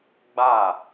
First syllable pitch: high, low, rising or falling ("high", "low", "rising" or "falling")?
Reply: falling